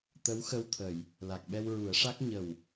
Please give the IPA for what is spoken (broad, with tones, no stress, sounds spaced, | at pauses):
t̪ ə˧˥ w x ə˧ w t̪ʰ ə˨˩˨ j | l a˨˩ k̚ ɓ ɛ˧ w ɹ u˨˩˦ ə̯ ʂ a˦˥ k̚ ɲ ə˨˩ w